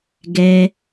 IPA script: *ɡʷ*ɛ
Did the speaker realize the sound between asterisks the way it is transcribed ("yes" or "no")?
no